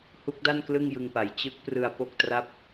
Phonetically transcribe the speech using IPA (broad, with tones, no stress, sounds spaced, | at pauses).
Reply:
h u˦˥ k̚ d a˥˩ n k l ɯ˥˩ ŋ j ɯ˧ ŋ p a˩˦ j t͡ɕ ɯ˦˥ k̚ p r ɯ˧ a̯ p o˥˩ k̚ t r a˥˩ p̚